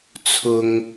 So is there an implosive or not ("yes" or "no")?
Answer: no